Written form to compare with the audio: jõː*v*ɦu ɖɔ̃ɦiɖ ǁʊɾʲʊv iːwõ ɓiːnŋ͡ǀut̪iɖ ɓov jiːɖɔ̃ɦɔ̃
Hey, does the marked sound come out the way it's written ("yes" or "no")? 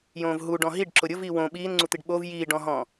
yes